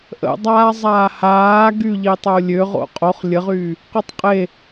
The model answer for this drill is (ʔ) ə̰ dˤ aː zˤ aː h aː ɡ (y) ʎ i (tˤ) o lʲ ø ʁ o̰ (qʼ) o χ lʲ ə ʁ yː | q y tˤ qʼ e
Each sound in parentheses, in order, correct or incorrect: correct, correct, correct, correct

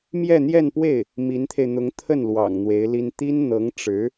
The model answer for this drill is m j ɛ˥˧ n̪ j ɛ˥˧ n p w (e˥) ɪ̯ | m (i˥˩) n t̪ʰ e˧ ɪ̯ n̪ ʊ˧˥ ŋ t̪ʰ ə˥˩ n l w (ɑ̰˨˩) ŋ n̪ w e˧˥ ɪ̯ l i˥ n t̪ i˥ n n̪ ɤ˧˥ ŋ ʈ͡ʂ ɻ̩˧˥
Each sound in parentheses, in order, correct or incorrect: incorrect, incorrect, correct

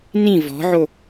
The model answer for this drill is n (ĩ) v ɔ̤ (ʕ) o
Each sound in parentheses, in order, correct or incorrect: correct, correct

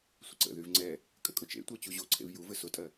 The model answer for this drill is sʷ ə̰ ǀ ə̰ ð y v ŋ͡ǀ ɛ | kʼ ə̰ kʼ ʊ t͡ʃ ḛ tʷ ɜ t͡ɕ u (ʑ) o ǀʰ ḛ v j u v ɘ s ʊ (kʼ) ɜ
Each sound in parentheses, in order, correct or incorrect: correct, incorrect

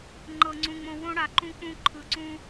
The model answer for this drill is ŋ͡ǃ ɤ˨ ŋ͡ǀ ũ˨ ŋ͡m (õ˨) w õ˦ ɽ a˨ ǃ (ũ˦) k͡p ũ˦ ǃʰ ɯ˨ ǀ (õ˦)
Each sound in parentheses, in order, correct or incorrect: correct, correct, incorrect

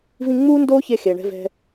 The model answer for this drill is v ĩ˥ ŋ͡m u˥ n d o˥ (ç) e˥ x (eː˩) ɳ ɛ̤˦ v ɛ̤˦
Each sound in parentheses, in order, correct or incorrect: correct, incorrect

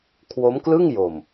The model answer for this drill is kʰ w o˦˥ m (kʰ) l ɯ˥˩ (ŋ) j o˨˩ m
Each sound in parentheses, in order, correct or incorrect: incorrect, correct

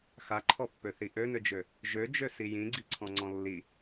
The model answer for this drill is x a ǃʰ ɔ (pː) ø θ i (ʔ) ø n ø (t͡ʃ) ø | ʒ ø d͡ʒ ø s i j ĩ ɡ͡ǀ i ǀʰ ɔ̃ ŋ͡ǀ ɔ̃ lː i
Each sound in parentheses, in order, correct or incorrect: correct, correct, incorrect

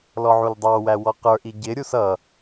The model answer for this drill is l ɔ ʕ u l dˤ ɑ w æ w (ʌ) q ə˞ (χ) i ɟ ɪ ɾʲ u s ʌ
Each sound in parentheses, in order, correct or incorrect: incorrect, incorrect

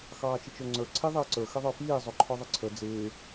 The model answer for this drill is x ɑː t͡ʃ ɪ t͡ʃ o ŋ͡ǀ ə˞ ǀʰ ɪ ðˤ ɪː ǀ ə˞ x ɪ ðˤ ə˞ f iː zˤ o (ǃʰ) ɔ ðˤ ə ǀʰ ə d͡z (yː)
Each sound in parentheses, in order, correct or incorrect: correct, incorrect

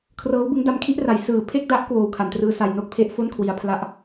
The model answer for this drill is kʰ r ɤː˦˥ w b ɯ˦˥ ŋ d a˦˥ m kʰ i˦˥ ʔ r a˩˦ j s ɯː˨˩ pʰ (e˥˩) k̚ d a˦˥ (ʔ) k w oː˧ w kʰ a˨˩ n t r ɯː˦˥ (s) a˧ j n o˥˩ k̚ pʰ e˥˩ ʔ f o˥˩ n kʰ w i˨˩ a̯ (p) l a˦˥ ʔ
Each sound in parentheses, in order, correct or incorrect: correct, correct, correct, incorrect

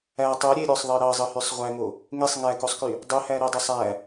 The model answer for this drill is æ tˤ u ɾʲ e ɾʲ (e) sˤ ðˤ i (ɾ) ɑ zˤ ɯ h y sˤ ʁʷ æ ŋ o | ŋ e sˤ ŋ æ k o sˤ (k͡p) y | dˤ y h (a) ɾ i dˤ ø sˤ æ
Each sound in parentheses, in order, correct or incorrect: incorrect, correct, incorrect, incorrect

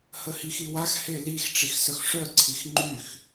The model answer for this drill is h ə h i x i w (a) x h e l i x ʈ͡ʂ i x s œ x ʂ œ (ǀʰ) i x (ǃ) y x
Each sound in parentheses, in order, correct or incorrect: correct, correct, incorrect

